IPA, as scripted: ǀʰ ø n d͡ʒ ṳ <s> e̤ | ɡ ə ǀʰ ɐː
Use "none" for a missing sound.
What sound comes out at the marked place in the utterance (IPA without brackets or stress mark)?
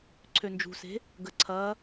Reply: s